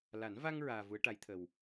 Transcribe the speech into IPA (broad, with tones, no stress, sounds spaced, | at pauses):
l a˨˩˦ n v a˧ ŋ ɹ aː˧ v u˧˥ ə̯ ʈ a˧˥ j t̪ʰ ə˨˩ w